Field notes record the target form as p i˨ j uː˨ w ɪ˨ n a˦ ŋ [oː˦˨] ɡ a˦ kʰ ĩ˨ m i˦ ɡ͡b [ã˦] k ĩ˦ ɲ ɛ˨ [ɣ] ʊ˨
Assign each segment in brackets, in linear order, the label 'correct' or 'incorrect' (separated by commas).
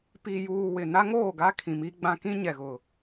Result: correct, correct, correct